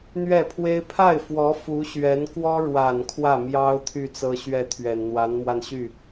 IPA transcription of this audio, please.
n̪ɥɛ˥˩pʰwe˥ɪ̯ pʰa˥˩ɪ̯fwɔ˧˥ fu˧˥ɕɥɛ˧˥nkwɔ˥ɻwa˨˩n kʰwä˥˩mjɑ˥ʊ̯ t̪ʰy˥˩t͡sɤ˥ɕɥɛ˥˩t̪ʰɥɛ˨˩n n̪wa˧˥nmwa˧nɕy˥˩

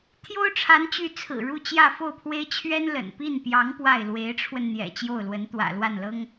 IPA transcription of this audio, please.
t̪ʰjo˥ʊ̯ʈ͡ʂʰa˧˥nt͡ɕy˧˥ t͡sʰɹ̩˨˩ɻu˥˧t͡ɕjä˥˧ fo˥˩ʊ̯pʰwe˥ɪ̯ t͡ɕʰɥɛ˥n lə̰˨˩n pi˥˩npjɑ˧˥ŋ pwa˥˩ɪ̯ lwe˧˥ɪ̯ʈ͡ʂʰwə˧n n̪jɛ̰˨˩ t͡ɕjo˥˩ʊ̯lwə˧˥nt̪wä̰˨˩ lwa˥˩nlɤ˥ŋ

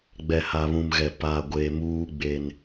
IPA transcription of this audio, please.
ɡ͡bɛ˨ha˨βũ˨mɣɛ˨ pa˨ ɡʷe˨muː˦ ɡ͡be˦n

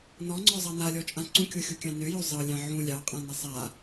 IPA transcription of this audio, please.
nɔŋ͡ǀɔzˤɑ nalʲɔt͡ʃʼã ǀũkʲoxʲukʲɑ̃ nøjo zˤɤlʲɑ̃ ʕũ lʲɑqʼãnʌ sˤa

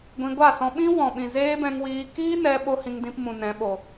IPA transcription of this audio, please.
ɡʷĩ˧ɡʷa˦˨sɔ̃˧ ɓĩ˦wɔ̃˨ɓĩ˨ zeː˦bɛ̃˧ŋwiː˧ kiː˦nɛ˧ ɓo˦hĩ˧ŋdĩ˧pmũ˨ nɛ̃˨˦ɓo˨

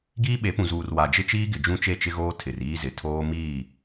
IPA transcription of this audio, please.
ɡiː˦ɓe˨˦ pũ˨zuː˨r wa˨d͡ʒɪ˦t͡ʃiː˦ɡɪ˨ d͡ʒũ˦t͡ʃe˦˨t͡ʃɪ˦ɣoː˦ tʰɪ˨riː˦zɪ˨ tʰoː˦ miː˦˨

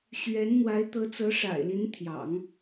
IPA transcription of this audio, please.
ɕɥɛ˧˥n n̪wa˧˥ɪ̯t̪ɤ˧˥t͡sɤ˧˥ ʂa̰˨˩ɪ̯li˧˥n t̪ʰjɑ̰˨˩˦ŋ

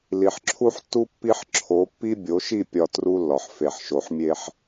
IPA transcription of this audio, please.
li˨ħǁʰu˦ħtːu˦ pːi˦ħǁʰo˨˦ pːi˦bʲo˨˦ʃi˦˨ pʲɒ˨ tru˦lːɒ˨ħ fe˨ħʃo˨ħmʲe˦ħ

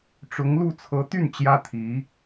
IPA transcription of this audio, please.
ʈ͡ʂʊ˧˥ŋlu˥˩ t͡sʰɤ˧˥t̪y˥˩n t͡ɕjä˥t̪ʰi˧˥

